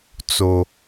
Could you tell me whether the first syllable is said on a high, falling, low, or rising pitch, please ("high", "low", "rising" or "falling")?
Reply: low